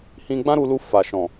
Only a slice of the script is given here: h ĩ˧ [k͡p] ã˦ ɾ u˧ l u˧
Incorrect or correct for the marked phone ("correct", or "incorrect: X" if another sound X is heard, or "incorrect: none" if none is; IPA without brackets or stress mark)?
incorrect: ɡ͡b